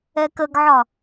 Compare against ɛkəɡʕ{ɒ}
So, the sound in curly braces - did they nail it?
yes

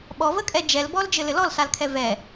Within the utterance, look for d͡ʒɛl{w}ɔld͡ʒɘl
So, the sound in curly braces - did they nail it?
no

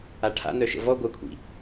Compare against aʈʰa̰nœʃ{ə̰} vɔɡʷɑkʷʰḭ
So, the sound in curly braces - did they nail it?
yes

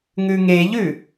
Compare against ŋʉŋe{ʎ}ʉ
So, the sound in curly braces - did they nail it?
yes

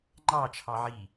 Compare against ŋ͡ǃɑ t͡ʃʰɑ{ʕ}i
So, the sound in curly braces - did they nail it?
yes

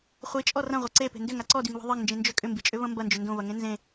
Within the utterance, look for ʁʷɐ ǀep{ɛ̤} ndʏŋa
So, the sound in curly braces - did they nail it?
no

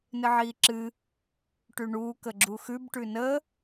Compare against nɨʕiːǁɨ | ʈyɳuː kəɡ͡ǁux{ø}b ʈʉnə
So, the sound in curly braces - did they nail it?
no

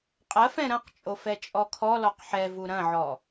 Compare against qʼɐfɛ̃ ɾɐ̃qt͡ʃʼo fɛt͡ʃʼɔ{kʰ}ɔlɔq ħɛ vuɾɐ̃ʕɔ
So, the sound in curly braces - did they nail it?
yes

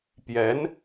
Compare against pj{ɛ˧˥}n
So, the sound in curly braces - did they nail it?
yes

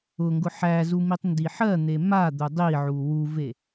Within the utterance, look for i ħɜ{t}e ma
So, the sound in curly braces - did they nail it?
no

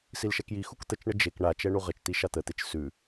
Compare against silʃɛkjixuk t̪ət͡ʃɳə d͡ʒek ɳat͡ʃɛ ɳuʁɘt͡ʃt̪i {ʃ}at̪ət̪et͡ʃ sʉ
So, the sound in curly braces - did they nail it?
yes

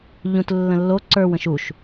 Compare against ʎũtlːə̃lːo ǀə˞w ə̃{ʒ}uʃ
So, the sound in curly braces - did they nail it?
no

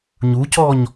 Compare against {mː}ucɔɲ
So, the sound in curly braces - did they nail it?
no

